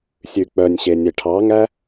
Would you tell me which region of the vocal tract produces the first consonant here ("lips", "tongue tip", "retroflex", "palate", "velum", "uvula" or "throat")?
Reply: tongue tip